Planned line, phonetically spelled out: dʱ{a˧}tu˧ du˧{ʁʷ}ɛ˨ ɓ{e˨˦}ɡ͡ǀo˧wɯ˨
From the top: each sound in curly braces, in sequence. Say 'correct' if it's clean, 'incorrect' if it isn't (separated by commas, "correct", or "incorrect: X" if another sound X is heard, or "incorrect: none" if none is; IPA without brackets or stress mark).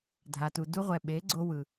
correct, correct, correct